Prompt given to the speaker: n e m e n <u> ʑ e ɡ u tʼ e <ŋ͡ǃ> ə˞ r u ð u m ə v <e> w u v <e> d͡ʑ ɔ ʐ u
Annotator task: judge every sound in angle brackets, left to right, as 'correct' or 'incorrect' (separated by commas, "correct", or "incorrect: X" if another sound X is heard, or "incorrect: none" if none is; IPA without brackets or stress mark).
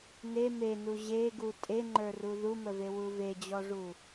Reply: correct, correct, correct, correct